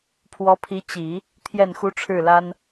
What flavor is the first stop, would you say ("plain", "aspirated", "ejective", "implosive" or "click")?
aspirated